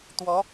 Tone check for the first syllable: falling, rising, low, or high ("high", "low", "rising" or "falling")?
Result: rising